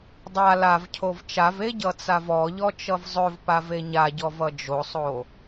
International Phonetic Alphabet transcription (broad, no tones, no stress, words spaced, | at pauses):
dˤa lavcʰov t͡ʃave ɟʌt͡savɔʎɔ t͡ʃʌvzˤɵvpav eɲaɟɔv ʌd͡ʒosˤo